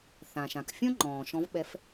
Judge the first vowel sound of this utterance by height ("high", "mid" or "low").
low